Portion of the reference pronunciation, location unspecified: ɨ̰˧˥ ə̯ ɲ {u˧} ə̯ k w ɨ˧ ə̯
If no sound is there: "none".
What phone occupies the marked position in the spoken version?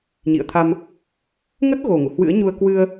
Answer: u˧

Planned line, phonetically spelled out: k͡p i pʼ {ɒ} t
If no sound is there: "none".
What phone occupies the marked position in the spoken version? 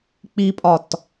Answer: ɒ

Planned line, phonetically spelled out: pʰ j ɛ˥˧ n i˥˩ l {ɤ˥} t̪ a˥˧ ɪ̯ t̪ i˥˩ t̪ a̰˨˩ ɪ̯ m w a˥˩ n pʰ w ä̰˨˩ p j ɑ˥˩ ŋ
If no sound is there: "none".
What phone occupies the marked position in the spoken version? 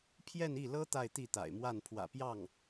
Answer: ɤ˥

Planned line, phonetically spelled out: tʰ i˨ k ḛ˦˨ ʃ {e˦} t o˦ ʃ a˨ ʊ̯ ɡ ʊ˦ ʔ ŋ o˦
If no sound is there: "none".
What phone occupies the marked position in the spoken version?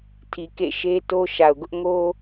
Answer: e˦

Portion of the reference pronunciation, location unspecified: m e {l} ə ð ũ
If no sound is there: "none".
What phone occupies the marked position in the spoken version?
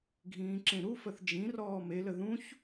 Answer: l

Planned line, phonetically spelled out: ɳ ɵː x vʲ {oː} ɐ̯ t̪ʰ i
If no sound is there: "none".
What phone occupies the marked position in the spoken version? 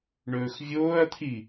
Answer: oː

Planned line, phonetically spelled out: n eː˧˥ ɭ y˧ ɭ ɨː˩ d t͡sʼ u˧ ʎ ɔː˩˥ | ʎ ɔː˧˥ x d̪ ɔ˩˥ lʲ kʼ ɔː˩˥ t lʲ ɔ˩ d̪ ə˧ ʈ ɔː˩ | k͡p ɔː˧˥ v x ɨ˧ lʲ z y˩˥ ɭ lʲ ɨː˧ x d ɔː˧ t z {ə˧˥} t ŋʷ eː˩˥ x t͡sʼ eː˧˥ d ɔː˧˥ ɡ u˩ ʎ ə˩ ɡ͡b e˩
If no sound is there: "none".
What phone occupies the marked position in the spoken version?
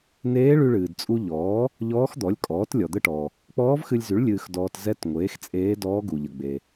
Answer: ɛ˧˥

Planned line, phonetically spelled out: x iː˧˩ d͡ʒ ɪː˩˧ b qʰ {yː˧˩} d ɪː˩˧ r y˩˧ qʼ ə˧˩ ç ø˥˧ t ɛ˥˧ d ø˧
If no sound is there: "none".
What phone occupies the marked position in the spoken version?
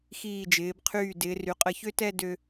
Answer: yː˧˩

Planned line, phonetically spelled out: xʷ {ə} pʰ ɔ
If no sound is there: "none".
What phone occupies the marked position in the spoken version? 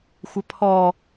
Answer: ə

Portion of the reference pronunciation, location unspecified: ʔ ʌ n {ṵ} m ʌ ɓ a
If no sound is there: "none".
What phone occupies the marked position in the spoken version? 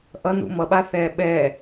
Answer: ṵ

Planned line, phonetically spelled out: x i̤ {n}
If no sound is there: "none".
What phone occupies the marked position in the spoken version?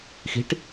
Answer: ʈ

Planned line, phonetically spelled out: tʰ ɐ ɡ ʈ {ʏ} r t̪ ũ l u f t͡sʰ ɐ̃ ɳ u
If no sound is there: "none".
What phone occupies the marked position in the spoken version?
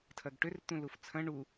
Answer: ʏ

